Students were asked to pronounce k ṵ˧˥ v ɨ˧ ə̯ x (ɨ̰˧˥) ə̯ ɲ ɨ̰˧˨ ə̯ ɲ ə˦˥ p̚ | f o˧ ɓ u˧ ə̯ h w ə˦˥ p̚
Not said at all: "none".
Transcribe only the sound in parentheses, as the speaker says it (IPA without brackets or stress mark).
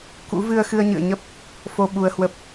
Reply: ɨ˧